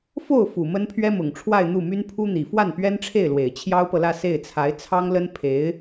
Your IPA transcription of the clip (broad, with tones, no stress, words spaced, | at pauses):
fo˥˩ʊ̯fu˨˩ mə˥npʰɥɛ˥mʊ˨˩ŋ ʈ͡ʂʰwa˥˧ɪ̯n̪u˥˩my˥n pʰu˥n̪i˨˩ fwa˥˩n pɥɛ˥nʈ͡ʂʰe˥˩ɪ̯lwe˨˩ɪ̯ t͡ɕʰjɑ˥ʊ̯pɤ˨lä˥˧ se˥˩ɪ̯t͡sʰa˧˥ɪ̯ t͡sʰɑ˥ŋlə˥n pʰe˧˥ɪ̯